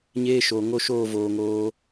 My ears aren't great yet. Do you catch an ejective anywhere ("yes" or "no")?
no